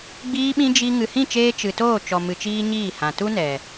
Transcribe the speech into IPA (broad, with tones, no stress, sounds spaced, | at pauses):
ɡ͡b iː˦ ɓ ĩ˦ d͡ʒ i˧ ŋ ɨ˨ h ĩ˦˨ t͡ʃ eː˧ t͡ʃ ɨ˨ t oː˦˨ t͡ʃ ɔ˨ m ɨ˨ t͡ʃ iː˧ ɲ iː˦˨ h ã˨ t u˦ n ɛ˨